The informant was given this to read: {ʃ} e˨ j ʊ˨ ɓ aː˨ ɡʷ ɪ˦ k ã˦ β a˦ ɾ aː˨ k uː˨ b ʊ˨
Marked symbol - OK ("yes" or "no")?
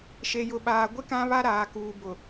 yes